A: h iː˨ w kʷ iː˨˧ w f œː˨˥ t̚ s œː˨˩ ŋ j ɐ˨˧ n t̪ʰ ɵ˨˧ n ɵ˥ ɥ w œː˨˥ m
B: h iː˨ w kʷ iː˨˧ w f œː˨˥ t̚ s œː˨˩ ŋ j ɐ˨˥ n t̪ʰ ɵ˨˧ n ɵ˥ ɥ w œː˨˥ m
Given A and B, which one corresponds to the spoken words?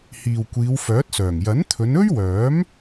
B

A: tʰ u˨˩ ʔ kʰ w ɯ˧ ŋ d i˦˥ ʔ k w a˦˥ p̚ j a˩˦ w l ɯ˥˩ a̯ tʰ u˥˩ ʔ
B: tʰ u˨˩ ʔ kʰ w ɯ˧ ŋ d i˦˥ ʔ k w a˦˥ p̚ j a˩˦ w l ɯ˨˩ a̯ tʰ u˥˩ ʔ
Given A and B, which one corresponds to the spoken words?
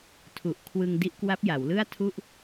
A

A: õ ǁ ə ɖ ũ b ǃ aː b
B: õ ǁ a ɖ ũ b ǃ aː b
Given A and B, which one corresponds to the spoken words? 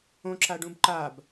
B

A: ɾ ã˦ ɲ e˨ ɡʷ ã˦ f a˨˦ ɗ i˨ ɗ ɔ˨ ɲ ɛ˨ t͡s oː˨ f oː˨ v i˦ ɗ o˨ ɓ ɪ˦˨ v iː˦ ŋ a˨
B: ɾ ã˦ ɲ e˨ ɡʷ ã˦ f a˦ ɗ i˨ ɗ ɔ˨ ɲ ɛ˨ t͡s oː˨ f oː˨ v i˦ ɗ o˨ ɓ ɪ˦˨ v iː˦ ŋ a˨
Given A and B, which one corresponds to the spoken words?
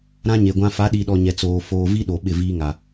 A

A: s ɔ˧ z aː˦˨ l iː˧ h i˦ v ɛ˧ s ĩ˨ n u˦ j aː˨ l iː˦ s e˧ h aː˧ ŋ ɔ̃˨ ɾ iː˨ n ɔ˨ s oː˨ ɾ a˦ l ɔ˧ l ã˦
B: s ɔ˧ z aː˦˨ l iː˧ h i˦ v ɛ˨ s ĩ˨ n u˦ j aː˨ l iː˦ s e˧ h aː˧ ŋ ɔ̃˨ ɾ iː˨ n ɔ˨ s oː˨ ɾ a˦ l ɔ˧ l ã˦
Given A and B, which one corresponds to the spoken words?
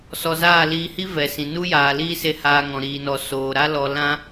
B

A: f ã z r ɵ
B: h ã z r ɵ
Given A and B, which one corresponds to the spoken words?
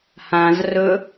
B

